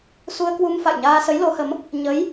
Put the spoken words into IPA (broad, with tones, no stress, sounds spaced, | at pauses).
s u˧ ə̯ k w u˧ m f a̰˧˨ j ɲ aː˧ s ə˨˦ j l o˨˦ h ə˨˦ m | ɲ ə˨˦ j